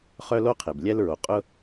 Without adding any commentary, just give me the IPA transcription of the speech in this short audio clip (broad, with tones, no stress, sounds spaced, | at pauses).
χ œ˥ l o˥ qʰ e˩ b lʲ ɛ˥ l ɹ o˩ qʼ ʊ˥